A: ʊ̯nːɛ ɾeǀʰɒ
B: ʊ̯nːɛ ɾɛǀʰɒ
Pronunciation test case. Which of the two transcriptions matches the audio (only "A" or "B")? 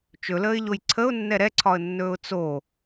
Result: B